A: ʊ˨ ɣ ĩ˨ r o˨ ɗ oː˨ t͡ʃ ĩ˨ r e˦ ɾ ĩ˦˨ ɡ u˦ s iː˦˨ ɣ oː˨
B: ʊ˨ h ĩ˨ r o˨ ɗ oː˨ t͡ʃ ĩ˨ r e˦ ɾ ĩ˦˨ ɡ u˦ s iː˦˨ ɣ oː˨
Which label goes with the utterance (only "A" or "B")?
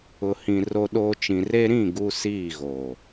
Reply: B